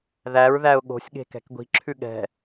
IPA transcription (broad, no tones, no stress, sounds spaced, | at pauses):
ð æ ɹ ð æ ʊ̯ ɠ o̤ sʲ ɠ e̤ k ɛ̤ k ɡʷ i̤ ǁʰ ʉ ɠ ɛ̤